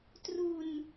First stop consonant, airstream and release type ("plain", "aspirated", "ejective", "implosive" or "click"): plain